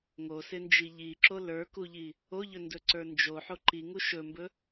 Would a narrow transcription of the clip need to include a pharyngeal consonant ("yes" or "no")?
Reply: yes